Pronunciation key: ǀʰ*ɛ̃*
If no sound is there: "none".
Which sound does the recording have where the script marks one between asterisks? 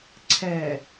ɛ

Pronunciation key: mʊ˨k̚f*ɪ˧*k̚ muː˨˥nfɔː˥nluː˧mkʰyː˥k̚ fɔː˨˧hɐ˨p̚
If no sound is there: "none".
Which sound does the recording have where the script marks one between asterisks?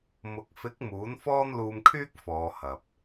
ɪ˨˥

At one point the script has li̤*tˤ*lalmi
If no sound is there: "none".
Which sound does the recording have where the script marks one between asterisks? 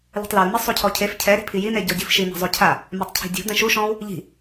tˤ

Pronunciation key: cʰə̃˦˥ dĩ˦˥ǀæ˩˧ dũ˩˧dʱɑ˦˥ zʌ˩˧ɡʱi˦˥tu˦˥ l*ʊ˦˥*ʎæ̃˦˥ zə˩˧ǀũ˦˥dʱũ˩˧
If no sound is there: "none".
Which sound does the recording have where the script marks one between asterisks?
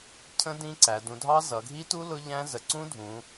ʊ˦˥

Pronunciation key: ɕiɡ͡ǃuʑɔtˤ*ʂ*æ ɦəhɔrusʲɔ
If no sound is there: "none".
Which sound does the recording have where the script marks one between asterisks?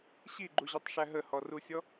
ʂ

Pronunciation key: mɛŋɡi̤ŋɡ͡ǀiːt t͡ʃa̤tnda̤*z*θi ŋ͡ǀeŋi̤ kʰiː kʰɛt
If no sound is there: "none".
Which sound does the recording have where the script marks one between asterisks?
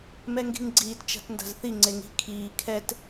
z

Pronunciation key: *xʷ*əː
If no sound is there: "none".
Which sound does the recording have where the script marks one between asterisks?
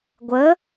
ɡʷ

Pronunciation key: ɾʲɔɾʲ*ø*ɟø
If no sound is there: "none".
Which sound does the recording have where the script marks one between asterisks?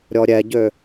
ɛ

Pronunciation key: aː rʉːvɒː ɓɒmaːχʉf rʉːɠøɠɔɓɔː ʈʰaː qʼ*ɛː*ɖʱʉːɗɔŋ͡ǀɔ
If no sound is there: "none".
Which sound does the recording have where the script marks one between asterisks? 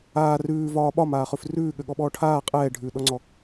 ɛː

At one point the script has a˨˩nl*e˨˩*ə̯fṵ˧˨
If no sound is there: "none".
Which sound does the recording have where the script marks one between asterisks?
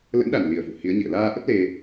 i˨˩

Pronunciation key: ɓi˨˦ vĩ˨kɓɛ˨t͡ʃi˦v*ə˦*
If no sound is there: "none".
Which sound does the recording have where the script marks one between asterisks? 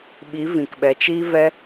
ɛ˦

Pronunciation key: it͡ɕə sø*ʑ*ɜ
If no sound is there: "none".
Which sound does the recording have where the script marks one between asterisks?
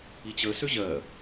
ʑ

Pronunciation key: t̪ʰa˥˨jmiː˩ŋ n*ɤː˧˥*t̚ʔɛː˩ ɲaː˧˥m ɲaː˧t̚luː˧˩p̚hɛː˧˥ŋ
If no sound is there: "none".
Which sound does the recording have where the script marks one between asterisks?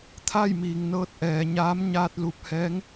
ɤː˧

